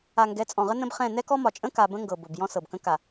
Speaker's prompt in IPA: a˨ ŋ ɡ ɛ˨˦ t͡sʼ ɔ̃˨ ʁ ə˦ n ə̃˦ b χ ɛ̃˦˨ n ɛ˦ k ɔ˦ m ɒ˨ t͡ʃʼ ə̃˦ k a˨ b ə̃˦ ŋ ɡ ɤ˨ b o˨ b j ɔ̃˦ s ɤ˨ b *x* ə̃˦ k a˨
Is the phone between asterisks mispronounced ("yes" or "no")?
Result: yes